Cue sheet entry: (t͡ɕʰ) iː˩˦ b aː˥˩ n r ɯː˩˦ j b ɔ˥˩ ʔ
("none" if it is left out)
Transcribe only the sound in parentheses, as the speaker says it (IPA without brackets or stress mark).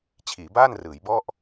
t͡ɕʰ